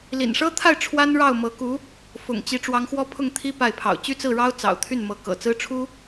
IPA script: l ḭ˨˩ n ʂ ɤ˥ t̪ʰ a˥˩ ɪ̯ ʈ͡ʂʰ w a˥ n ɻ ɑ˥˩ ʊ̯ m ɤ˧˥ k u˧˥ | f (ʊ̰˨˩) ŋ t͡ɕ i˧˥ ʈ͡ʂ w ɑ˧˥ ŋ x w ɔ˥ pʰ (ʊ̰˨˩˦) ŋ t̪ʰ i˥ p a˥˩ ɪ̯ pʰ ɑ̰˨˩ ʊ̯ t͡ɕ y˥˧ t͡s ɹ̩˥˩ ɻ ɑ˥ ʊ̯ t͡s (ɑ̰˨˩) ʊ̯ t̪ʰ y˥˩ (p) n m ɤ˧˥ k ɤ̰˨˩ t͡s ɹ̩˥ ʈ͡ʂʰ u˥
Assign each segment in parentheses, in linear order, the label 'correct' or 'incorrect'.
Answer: correct, incorrect, correct, incorrect

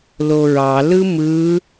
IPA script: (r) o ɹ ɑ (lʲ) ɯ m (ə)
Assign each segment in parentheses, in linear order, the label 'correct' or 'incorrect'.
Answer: incorrect, incorrect, incorrect

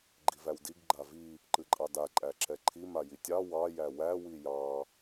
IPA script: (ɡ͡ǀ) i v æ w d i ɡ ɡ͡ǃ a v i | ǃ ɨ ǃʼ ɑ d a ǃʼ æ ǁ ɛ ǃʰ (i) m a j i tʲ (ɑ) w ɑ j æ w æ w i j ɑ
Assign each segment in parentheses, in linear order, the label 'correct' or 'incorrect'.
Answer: incorrect, correct, correct

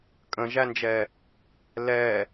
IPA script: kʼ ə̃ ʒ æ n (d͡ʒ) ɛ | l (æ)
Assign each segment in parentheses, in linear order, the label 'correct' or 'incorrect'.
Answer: correct, incorrect

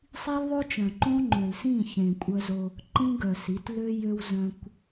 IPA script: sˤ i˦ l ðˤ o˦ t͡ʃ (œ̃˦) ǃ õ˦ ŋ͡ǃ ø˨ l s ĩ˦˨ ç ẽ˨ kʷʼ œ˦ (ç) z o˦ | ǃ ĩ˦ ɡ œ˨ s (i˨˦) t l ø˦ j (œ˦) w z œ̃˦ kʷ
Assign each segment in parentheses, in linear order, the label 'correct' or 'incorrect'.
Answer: incorrect, incorrect, correct, incorrect

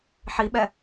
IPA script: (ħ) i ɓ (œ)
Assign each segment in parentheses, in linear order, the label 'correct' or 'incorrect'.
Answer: correct, incorrect

